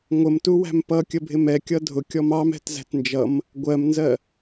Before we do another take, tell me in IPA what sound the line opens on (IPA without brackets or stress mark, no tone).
ŋʷ